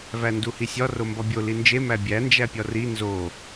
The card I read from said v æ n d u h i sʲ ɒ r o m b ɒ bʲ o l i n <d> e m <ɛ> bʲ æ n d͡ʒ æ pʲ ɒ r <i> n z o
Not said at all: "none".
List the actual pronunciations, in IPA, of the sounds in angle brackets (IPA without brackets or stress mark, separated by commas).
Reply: d͡ʒ, æ, i